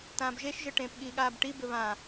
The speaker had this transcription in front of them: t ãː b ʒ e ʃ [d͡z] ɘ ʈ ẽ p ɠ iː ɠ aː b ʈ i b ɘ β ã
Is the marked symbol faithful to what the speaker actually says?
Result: no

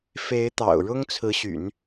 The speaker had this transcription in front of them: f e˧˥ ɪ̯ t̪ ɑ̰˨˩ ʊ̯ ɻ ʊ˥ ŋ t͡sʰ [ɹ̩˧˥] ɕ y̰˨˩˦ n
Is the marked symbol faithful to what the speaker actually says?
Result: yes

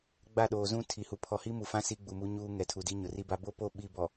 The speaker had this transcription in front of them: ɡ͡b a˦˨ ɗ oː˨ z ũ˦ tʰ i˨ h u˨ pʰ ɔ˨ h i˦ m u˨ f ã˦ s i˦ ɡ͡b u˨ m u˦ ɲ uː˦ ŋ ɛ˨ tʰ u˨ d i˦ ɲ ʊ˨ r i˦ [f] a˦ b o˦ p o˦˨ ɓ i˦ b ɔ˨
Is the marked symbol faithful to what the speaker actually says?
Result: no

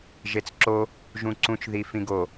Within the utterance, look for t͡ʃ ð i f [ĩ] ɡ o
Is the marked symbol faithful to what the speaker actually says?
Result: yes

